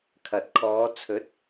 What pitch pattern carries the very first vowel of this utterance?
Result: low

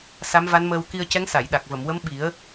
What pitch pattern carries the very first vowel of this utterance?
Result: rising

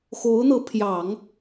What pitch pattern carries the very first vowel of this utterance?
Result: rising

